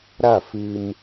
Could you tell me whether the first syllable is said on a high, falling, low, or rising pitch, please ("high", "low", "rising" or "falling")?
falling